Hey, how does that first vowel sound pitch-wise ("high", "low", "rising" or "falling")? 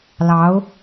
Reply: rising